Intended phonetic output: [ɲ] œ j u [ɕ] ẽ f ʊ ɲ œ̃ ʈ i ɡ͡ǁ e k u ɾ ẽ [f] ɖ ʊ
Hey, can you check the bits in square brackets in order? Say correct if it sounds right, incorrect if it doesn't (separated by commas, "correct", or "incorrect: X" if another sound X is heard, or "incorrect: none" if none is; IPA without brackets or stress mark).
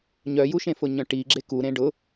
correct, incorrect: ʃ, incorrect: none